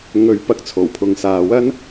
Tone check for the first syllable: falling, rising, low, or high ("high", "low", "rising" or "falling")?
rising